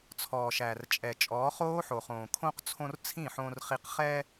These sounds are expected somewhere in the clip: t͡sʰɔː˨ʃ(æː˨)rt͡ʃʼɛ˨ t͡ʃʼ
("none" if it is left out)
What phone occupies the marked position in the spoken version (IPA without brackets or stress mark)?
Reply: æː˨